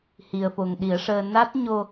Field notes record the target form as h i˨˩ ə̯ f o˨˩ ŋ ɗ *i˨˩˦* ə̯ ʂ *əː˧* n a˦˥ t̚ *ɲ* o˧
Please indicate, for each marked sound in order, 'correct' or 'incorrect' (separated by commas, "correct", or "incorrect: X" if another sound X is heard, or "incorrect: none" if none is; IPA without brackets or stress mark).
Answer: correct, correct, correct